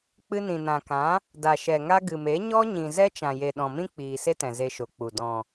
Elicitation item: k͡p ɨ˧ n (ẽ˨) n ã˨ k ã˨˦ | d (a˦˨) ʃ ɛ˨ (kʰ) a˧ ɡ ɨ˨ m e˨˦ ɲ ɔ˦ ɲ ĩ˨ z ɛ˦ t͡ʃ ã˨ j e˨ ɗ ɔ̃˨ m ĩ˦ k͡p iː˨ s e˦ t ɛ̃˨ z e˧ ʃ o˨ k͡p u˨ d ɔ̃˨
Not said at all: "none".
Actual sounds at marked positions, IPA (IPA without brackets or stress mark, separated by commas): ĩ˨, a˨, ŋ